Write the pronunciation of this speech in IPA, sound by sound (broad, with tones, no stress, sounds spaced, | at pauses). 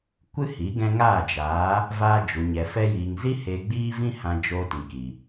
kʷ ɨ˦ h i˨˦ ɡ ɛ̃˧ ŋ aː˦˨ d͡ʒ aː˨˦ | v aː˧ d͡ʒ u˨ ɲ ɛ˨ f ɛ˧ j iː˨ ŋ z i˦ h eː˧ ɡ͡b iː˦ v ĩ˦ h ã˧ d͡ʒ oː˧ t ĩ˨ k i˨